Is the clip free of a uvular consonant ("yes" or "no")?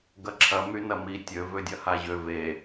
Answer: yes